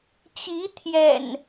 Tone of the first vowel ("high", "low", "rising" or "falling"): rising